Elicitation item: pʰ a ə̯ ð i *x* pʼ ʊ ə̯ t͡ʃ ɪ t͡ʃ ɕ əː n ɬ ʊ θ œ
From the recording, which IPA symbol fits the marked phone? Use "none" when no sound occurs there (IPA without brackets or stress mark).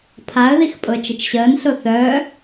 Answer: x